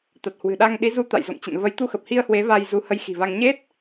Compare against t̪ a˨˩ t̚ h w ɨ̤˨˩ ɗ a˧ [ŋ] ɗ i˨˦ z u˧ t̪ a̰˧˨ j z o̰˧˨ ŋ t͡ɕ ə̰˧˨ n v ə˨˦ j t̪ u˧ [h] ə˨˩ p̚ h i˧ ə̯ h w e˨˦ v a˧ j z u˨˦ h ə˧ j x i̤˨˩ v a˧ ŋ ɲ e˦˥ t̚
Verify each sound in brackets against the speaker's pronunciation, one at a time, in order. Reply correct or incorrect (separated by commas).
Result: correct, incorrect